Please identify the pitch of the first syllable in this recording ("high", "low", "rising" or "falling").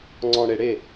low